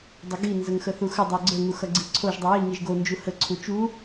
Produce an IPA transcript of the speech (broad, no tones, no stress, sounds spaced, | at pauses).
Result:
dˤ ə ɡ i n z ə ŋ x ə θ u x ə dˤ o ɡ͡ǀ ə ŋ u x ʌ ɡ͡ǀ i ǀʰ o ʒ dˤ u j i ŋ i ʒ ɡ o n d͡ʒ u h ə ǀʰ u t͡ʃ u